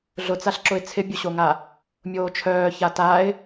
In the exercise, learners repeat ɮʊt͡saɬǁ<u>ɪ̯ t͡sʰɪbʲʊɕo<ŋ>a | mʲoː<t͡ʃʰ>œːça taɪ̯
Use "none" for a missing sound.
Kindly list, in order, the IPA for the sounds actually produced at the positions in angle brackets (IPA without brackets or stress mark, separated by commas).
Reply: ʊ, ŋ, t͡ʃʰ